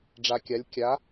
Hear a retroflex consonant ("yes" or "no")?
yes